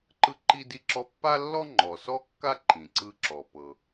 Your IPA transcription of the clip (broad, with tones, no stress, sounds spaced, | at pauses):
ǃ ɯ˥ ǃ i˥ d i˥ ǁ ɔ˥ pː a˥ lː ɔ˥ ŋ͡ǃ ɔ˩ s ɔ˥ kː a˥ ǃ ĩ˩ ǀ ɯ˥ ǁ ɔ˩ p ɤ˩